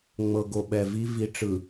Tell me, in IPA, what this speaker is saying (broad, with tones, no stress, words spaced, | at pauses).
ŋ͡mɤ˨ɡo˨ɓɛ˨vi˦ vi˨ʈ͡ʂɯ˨